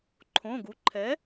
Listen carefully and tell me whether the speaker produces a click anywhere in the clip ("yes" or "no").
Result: yes